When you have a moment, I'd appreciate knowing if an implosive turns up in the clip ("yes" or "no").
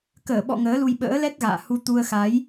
yes